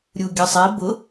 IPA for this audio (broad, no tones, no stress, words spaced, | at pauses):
ɾʲuɡʲəsˤi bʊ